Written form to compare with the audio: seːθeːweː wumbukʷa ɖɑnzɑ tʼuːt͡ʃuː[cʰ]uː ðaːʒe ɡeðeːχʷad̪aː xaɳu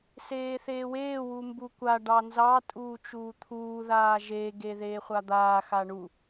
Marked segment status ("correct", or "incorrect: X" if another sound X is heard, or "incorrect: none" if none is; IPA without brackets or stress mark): incorrect: t̪ʰ